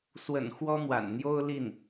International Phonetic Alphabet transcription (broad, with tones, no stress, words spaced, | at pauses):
swə̰˨˩n xwɔ˥n̪wa̰˨˩nn̪jo˥ʊ̯ li˥˩n